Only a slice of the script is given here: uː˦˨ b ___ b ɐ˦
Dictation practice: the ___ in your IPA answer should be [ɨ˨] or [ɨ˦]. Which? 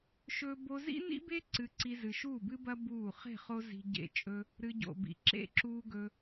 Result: ɨ˦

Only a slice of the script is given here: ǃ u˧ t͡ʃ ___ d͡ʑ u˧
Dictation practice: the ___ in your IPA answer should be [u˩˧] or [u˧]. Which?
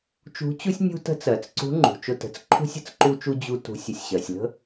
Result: u˧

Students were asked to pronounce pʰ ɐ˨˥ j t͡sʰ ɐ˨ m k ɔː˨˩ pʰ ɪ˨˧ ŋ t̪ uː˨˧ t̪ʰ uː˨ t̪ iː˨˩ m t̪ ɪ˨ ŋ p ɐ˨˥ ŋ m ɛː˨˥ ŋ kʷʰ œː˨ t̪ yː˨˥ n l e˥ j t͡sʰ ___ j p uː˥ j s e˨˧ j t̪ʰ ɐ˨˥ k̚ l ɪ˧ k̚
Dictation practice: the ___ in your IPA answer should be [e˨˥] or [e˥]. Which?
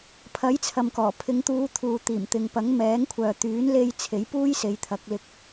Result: e˨˥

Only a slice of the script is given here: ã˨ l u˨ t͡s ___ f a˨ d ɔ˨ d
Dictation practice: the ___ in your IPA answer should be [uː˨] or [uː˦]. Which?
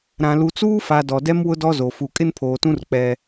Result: uː˦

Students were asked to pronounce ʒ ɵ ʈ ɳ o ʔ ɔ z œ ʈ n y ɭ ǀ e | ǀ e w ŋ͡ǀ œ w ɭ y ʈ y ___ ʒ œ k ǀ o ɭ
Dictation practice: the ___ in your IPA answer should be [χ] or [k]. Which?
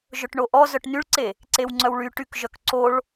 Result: k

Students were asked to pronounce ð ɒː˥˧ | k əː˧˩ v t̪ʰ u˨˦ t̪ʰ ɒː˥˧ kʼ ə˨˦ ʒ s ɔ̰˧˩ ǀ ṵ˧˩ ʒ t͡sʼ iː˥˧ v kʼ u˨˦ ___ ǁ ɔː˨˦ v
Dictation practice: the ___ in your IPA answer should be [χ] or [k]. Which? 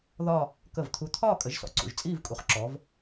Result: χ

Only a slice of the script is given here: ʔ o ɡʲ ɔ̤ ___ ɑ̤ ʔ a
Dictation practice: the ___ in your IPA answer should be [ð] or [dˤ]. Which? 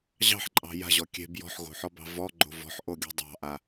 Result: dˤ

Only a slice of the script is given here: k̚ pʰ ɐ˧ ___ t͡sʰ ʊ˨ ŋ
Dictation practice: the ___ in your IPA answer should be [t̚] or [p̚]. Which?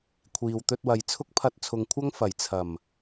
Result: t̚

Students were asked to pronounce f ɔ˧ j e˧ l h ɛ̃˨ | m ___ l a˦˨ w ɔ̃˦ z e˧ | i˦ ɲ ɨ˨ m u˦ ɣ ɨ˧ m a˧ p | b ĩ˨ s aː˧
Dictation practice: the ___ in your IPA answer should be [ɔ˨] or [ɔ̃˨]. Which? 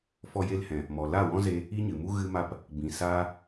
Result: ɔ˨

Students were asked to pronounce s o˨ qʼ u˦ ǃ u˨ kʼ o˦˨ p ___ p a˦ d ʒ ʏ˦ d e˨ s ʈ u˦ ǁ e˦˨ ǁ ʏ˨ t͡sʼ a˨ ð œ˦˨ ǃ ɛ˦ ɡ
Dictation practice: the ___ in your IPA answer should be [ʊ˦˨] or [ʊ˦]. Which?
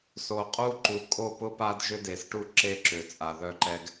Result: ʊ˦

